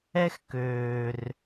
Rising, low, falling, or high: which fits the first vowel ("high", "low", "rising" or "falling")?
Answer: high